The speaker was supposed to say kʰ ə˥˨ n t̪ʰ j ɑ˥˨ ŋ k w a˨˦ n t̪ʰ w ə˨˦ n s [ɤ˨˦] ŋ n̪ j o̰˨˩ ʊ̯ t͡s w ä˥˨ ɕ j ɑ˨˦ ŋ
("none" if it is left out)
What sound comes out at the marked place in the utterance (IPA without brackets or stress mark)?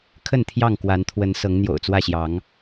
ɤ˨˦